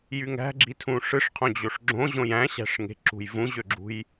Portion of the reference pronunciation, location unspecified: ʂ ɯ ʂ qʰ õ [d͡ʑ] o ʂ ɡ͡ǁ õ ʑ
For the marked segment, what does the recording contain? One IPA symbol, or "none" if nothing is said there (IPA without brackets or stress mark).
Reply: d͡ʑ